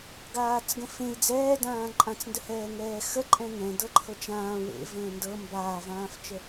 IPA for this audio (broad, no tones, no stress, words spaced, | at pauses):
ɡaːt͡sɡə̃fẽi̯ d͡zɛːdãː ǃʼãt͡sndə hɛːŋɛːxə ǃʼɛ̃ŋɛ̃ dɤǃʰɤt͡ʃãː wḛ və̃ːndɤ mbaːvãːft͡ʃə